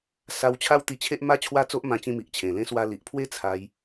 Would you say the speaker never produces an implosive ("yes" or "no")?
yes